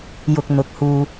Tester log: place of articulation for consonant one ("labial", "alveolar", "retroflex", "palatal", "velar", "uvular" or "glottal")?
palatal